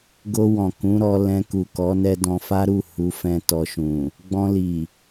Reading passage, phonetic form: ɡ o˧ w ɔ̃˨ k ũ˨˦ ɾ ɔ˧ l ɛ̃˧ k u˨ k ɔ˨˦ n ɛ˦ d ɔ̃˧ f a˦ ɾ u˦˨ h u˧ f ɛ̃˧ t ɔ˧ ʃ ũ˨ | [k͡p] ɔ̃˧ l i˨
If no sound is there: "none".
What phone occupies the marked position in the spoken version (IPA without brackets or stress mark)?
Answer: ɡ͡b